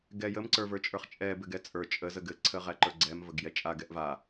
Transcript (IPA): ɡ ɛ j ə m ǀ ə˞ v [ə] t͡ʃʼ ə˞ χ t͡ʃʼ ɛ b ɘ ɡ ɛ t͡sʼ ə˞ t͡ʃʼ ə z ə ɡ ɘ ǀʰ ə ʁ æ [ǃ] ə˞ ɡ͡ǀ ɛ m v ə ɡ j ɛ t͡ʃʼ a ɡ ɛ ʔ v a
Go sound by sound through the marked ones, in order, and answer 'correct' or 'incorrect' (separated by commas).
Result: incorrect, correct